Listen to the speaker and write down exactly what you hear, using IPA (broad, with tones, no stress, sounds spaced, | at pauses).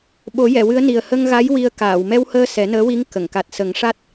ɓ o˨˩˦ j ɛ˨˩˨ w ɨ˧˥ ə̯ n i˨˩ ə̯ h ə˧ ŋ ɣ a˧˥ j w i˧ ə̯ k aː˨˩˨ w m ɛ˧ w h əː˧ s ɛ˨˩˦ n əː˧˥ w i˧˥ ŋ k ə˨˩˨ ŋ k a˨˩ t̚ s ə˨˩˦ ŋ ʂ a˦˥ t̚